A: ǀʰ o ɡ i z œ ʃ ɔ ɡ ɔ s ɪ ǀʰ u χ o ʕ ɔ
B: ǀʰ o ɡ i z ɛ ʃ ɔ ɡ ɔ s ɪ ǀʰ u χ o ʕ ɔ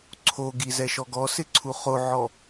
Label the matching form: B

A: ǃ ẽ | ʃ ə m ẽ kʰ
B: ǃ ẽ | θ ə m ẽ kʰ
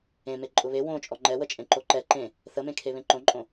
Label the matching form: B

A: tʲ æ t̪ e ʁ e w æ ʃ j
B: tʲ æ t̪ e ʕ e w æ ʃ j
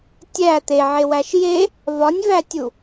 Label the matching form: B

